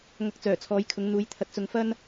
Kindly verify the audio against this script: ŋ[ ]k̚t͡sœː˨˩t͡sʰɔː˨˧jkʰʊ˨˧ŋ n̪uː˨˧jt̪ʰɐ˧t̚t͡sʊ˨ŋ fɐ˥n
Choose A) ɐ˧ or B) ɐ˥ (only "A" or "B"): A